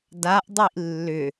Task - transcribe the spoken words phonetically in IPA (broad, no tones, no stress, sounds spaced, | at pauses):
d a ʔ dˤ i ʔ lː ʏ